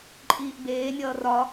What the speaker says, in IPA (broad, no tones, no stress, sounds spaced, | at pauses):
ǃʼ iː ʔ b eː nʲ ʌː r ɒ